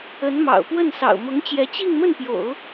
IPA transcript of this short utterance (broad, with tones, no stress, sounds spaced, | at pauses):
ə˧˥ n m ɑ̰˨˩ ʊ̯ p w ə˥˩ n s ɑ̰˨˩ ʊ̯ m ʊ˧˥ ŋ t͡ɕ j ɛ˧˥ t͡ɕ i˥˧ ŋ m ə˥˩ n p j o̰˨˩˦ ʊ̯